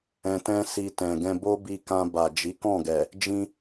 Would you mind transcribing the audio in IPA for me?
ɛ̃˧tɛ̃˦ si˧ tɛ̃˨ɡɛ̃˧ bo˦bi˧kã˧ ba˨d͡ʒi˨˦kɔ̃˦˨ɡɛ˨ | d͡ʒĩ˧

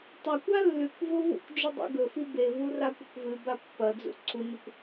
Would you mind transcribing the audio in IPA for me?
tˤa kʷalːʉkʷvo vṵkʷd͡ʒɨ dˤḭɡɵfi bevu rakʷɐkʷvɨba pːɐd͡zṵ ǀʰunɵkʷ

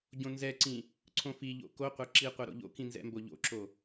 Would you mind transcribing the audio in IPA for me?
ɟõnzɛǀĩ | ǀʰõfiʎo̰ koqʷɛ ǁi qʷɛɾo̰ʎo̰kĩ nzɛ̰mboʎo̰ǁo

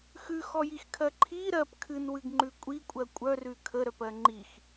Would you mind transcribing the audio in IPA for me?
xʉxɔjixkʰɜ ǃʰi ɾɜp kʰɨnwɨɡŋ͡ǃʉ kʷʼikʷʼɜ kʷʼœrʉ kʰəɾœpɜ ŋ͡ǃix

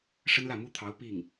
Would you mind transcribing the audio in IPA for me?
ʂə˥nlä˥˩mu˥t̪ʰɑ˧˥ʊ̯ pi˥˩ŋ

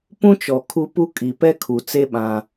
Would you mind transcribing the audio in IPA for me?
pũ˦t͡ʃɔ˨kʰu˦pu˦ kʼi˨pɛ˦kʰu˨t͡se˦ ɓã˦

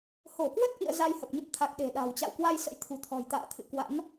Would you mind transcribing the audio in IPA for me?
ho˧˩kwə˦˥t̚ʔḭ˧˨ə̯ za˧jhə˨˩p̚ɲə˦˥p̚t̪ʰa˨˩k̚ ɗe̤˨˩ɗa̤˨˩wt͡ɕa̰˧˨w kwa˧jsə̰˧˥jt̪ʰṳ˨˩t̪ʰɔ̤˨˩j t̪a̰ː˧˨t̪ʰɨ̰˧˨ kwa̰˧˥n

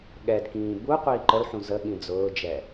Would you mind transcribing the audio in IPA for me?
ɠɛd kĩːbu qʷiːǃəlħũ zəɠĩ d͡zʊːd͡ʒɛ

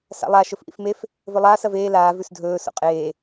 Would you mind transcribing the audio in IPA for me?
sa̰lˠa ʃɵfʔḭfmef | vɵlˠaːs ɐveː laː vʉsdʱɵː so̰qʼeː

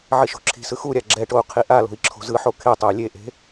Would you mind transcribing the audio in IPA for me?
ʕiʃo̤ǁʰi̤sɯ xuɾʲa ɡ͡ǁɛʈou̯ qʰiʔalo̤i̯ ǁʰo̤zɯħo kʰetˤey̯ lʲeʔe̤

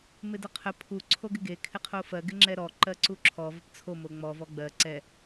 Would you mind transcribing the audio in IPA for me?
mɪdəqʰə pʰu ǀʰoɡɪɡe kʰɪqʰofɜ ɡɪŋ͡ǁɛɾɔ ǃɜǀuǁʰɔ vəpt͡sʰo moŋ͡mɔ vɔɡ͡bɜ ǀɛ

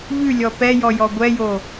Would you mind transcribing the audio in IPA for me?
ʎʉlʲɔ pɛjɔjɔ ɡʷɛjo

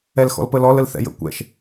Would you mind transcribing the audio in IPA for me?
ɛlxɔ̰lpəlɔl əlθɛ̰jə̰ kʷɛ̰ʃ

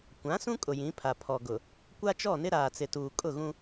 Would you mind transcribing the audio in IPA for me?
kʷã˨˦sũ˦ kʼʊ˨jĩ˨˦pʰa˨ pʰɔ˨ɡʊ˨ | kʷa˦t͡ʃɔ˦˨nɪ˦ ɾaː˨t͡sɪ˨tuː˨ kʼʊ˦˨ɣũ˦

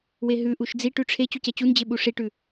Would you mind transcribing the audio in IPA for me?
weɦʉʔuʃ d͡ziʈʉ ʈ͡ʂʰe t͡ɕucɛt͡ɕund͡ʑe ɓuʂiʈʉ

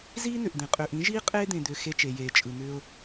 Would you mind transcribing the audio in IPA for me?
ziː˦n̪ʏ˨ʔd̪ẽ˨ qʼʏː˨ʔĩ˨˦ʒiː˦ qʼeː˦d̪ẽ˨d̪ʏː˨ xe˦t͡ʃe˨jeː˨ t͡ʃʼɯ˨n̪ʏː˦ʊ̯

